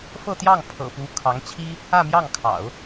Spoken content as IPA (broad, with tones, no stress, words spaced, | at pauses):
fɤ˥˧t̪jɑ˥˩ŋ pʰɤ̰˨˩pu˧˥ kʰɑ˧˥ŋt͡ɕʰi˥ | ä˥˧mjɑ˥˩ŋkʰɑ̰˨˩˦ʊ̯